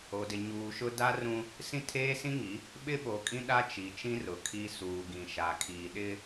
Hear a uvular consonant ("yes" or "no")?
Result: no